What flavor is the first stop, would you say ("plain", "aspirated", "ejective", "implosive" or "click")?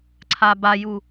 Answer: click